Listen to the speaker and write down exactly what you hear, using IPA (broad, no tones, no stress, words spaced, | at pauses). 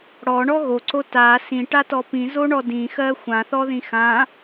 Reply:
ɽɔɳɔ ɣoǀo ta sĩʈatɔ pĩzoɳɔ dĩxɜ xʷãθɔðĩ xã